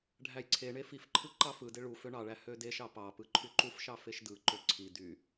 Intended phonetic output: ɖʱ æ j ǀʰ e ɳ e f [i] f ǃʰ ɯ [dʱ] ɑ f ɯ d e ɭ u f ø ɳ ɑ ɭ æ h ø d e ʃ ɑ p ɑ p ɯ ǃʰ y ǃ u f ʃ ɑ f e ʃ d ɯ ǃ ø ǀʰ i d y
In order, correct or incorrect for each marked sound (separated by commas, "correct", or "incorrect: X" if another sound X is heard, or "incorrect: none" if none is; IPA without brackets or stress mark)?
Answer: correct, incorrect: ǃ